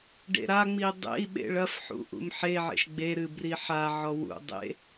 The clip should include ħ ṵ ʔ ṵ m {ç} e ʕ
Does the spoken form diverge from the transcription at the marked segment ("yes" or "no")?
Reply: yes